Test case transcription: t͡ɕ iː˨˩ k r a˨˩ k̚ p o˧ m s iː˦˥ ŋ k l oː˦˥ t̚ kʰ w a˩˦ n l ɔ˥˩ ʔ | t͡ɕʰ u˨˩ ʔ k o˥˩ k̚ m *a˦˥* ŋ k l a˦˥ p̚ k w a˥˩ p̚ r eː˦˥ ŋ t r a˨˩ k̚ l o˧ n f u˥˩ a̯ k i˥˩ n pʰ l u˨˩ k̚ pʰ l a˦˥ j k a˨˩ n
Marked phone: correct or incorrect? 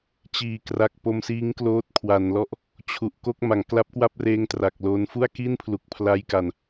incorrect